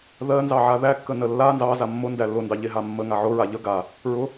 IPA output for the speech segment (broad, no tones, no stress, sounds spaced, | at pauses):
ð ɜ n z ɑ ʕ a ð æ kː ə n ə lː a n z ɑ z a mː ʊ n d æ lː ʊ n d ɑ ʎ e ɦ a mː ə ŋ a ʕ ʊ ɹ a ʎ ə ɡ a | ɹ ʊ